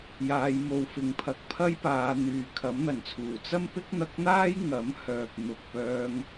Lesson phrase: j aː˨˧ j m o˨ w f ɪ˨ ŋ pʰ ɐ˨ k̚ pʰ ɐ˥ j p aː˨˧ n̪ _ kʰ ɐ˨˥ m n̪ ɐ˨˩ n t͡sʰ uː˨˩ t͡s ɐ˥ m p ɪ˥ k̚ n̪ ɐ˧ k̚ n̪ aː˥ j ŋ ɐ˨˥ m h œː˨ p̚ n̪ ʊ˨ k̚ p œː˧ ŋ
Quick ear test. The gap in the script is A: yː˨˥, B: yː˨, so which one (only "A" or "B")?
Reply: B